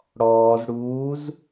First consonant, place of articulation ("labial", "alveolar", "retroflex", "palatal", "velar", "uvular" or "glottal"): retroflex